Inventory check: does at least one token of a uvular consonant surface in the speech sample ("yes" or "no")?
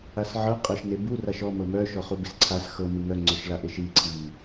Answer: yes